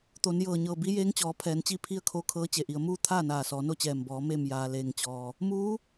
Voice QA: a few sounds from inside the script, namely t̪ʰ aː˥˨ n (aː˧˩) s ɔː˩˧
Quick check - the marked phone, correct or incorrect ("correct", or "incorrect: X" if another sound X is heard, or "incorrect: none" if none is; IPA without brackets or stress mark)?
correct